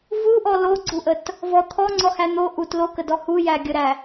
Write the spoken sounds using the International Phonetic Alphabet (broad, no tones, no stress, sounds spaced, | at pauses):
v u ʔ ɔ l o ɡ͡ǀ u ʔ ə t | v ɔ t̪ʰ ɔ ŋ͡ǀ ɔ h æ n̪ o ʔ u t l o k ə d ɔ h u j æ ɡʲ ə ɾ æ